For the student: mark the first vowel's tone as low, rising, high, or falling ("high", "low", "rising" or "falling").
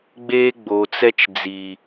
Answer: high